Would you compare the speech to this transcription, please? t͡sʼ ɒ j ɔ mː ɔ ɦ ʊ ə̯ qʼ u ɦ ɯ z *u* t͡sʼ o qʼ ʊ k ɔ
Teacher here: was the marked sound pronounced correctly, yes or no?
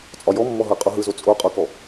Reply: no